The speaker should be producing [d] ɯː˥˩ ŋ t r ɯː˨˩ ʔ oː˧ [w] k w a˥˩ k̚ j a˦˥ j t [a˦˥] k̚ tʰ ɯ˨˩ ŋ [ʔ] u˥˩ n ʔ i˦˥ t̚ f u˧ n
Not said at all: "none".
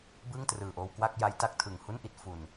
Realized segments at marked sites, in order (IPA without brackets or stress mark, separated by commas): b, w, a˦˥, h